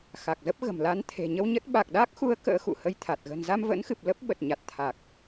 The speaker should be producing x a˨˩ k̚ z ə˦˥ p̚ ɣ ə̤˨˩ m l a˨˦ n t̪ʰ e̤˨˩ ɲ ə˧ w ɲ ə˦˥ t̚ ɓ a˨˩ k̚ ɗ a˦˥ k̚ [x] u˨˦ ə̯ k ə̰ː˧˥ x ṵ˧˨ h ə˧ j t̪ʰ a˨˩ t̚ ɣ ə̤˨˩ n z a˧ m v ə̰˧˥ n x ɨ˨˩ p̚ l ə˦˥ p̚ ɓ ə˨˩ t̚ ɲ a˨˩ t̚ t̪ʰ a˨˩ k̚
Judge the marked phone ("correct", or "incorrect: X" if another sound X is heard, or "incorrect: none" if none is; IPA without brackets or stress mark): correct